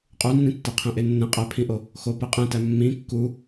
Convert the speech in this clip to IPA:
qʼ u nː ĩ tː e qʰ ẽ ʔ e nː ẽ qʼ æ pʰ ĩ ʔ o | x o p e qʼ ẽ t æ mː ĩ kː u

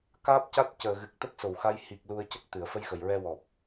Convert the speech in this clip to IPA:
k aː˦˥ p̚ c a˦˥ t̚ c əː˨˩ ɣ ɨ˨˩ k̚ t̪ ə˦˥ k̚ s o˨˩˨ w x a˧ j h i˨˩ k̚ l u˧ ə̯ c ə˦˥ k̚ t̪ ɨ˨˩˨ ə̯ f ə˧ j x ə˨˩ j ɹ ɛ˧ w ɔ˨˩ p̚

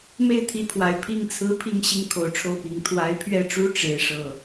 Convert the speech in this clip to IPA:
m e˥˩ ɪ̯ t̪ʰ i˧˥ pʰ w a˨˩ ɪ̯ pʰ i˥ ŋ t͡sʰ ɹ̩˥ pʰ i˥˧ ŋ ɕ i˥˩ ŋ kʰ o˨˩ ʊ̯ ʈ͡ʂʰ o˥˩ ʊ̯ p i˨˩ ŋ t̪ʰ w a˧˥ ɪ̯ pʰ ɥ ɛ˥˩ ʈ͡ʂ u˥ ʈ͡ʂ e˥ ɪ̯ ʂ ɤ˥˩

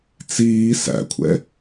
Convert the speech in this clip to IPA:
t͡s iː s æ̰ kʷʰ ɛ̰

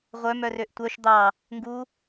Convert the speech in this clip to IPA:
ʁʷ œ m œ r ø ʔ tʷ œ ʃ d̪ ɑ | ŋ ɡ u

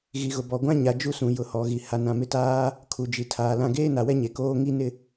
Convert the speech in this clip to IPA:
ɣ i˨ ɣ ʊ˨ b ɔ˨ ɡʷ ã˦ ɲ a˨ d͡ʒ u˦ s ũ˨ j ʊ˨ h ɔ˨ ɣ i˨ h a˨ n ã˨ m ɪ˦ t aː˦ | kʰ u˨ d͡ʒ i˨ tʰ aː˨ l ã˦ ɡ eː˦ n a˨ w ɛ˦ ɲ e˨ k oː˦ ŋ i˦ n ɪ˦

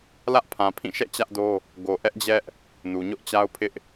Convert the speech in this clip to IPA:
l ä˦ ʔ pʰ ã˨ pʰ ĩ˦˨ ʃ ɛ̰˦˨ t͡ɕ ä˦ ʔ d o˦ | ɡ o˨ ʔ ɛ˦ ʔ d͡ʑ ɛ˦ ʔ | n u˨ ɲ ʊ˦ ʔ t͡ɕ a˦ ʊ̯ pʰ ɪ˦ ʔ

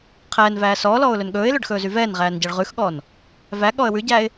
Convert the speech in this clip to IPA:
qʰ ɛː n v æː s ɔː l ɔː ʊ̯ l ɵ n ɠ ɵː ɪ̯ l ɵ ɖ x ɵː z y v ɛː n ʁ æː n ɟ æ ɭ ʁ ʉ x ɠ ɔː n | v æ ɠ ɔ ə̯ w ʉ ɟ æː ɪ̯

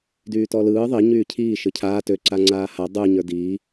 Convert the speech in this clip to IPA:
d yː t ɔ l ɯː ðˤ i ɲ yː cʰ iː ʃ ɯ cʰ aː t ø ǀ a ŋ͡ǀ aː h a dˤ ɯ ɲ ə˞ d iː

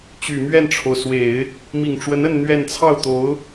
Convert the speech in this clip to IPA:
t͡ɕ y˨˩ m ɥ ɛ˥˩ n ʈ͡ʂʰ o˩ ʊ̯ s w e˨˩˦ ɪ̯ | m i˨˩ ŋ ʈ͡ʂ w ə˧˥ n ə˥˧ n n̪ ɥ ɛ˥˧ n t͡sʰ ɑ˥˩ ʊ̯ t̪ o˧˥ ʊ̯

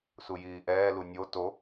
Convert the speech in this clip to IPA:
s u j iː ʔ ɛː l u nʲ o t o

